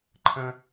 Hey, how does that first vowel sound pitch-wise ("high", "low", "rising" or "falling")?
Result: high